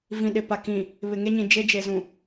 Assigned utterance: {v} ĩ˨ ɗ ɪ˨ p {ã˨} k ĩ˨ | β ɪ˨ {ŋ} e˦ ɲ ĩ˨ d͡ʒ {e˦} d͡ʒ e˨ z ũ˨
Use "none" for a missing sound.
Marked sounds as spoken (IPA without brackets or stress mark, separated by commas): v, a˨, ŋ, e˦